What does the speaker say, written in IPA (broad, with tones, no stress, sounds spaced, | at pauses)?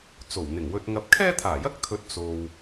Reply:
t͡s o˨˩ w n̪ ɪ˨˩ ŋ w ɵ˧ t̚ ŋ ɐ˧ p̚ kʰ ɛː˥ t̪ʰ aː˨˩ j ɐ˥ k̚ t̪ʰ ɵ˨˥ t̚ t͡s o˨ w